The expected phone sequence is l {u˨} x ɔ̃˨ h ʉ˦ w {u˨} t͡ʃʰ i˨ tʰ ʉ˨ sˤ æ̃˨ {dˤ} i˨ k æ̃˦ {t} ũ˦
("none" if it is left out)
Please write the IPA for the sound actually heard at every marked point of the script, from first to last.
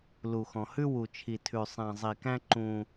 u˨, u˨, zˤ, ǃ

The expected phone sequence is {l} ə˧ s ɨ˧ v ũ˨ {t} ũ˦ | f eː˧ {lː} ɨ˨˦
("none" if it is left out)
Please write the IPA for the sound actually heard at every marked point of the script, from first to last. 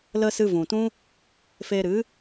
l, t, ɾ

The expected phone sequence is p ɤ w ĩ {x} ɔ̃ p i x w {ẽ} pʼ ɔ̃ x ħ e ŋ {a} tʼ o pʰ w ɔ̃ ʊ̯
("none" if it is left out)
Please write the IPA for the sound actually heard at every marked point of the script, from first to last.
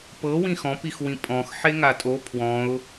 x, ĩ, a

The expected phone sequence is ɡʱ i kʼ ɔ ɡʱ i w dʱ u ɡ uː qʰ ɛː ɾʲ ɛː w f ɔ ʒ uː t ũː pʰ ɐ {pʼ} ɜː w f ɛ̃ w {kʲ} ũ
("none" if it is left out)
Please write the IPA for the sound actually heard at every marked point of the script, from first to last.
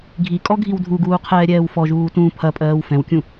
pʼ, kʲ

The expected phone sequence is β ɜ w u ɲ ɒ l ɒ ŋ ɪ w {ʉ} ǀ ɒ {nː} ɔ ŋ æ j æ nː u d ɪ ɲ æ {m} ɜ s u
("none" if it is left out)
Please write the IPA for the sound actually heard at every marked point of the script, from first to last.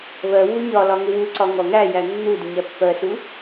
u, ŋ, pː

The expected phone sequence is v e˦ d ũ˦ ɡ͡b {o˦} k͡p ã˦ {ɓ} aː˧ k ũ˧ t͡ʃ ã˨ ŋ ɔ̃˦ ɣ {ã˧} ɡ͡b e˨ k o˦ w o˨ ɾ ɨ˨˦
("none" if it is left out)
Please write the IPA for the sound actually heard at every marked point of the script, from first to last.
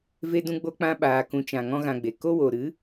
o˦, ɓ, ã˧

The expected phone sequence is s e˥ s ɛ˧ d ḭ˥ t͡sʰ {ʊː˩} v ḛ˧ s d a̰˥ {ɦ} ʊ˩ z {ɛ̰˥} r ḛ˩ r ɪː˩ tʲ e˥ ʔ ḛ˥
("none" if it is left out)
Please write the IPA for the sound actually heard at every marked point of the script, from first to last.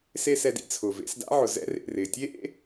ʊː˩, ʕ, ɛ̰˥

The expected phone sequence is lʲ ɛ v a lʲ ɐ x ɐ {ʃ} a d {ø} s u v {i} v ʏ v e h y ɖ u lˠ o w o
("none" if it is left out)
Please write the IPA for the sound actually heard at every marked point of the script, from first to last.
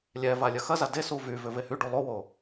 z, e, y

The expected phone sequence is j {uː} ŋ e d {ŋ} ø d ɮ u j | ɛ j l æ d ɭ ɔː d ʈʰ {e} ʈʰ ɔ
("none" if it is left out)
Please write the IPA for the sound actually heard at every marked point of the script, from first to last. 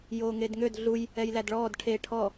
oː, ŋ, e

